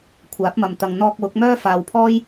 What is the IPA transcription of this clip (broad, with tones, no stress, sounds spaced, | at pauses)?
kʷʰ aː˨˥ p̚ m ɐ˨ m t̪ ɐ˨ ŋ n̪ ɔː˧ k̚ w ʊ˨˥ k̚ m œː˥ f aː˨ w pʰ ɔː˥ j